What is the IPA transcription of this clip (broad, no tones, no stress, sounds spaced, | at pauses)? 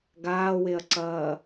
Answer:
ɡ aː w e ɐ̯ ǀ ɐː